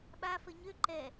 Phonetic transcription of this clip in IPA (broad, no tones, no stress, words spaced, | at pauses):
ɓa fəɲø ǃɛ